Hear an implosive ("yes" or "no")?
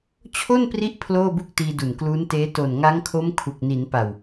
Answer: no